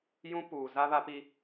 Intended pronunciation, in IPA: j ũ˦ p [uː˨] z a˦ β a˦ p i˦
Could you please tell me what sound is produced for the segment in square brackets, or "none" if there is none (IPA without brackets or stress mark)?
uː˨